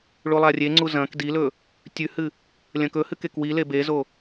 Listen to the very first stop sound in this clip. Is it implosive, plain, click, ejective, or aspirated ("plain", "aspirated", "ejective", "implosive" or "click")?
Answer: click